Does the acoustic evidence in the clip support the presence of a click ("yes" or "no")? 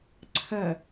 yes